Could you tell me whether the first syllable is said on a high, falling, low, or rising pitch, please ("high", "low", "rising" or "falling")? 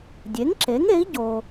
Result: rising